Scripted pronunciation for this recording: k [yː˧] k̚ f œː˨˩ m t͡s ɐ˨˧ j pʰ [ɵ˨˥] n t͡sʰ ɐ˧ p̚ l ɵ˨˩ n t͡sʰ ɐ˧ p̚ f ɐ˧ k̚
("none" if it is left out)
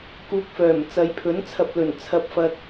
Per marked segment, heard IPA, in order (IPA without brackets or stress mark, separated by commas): uː˧, ɵ˨˥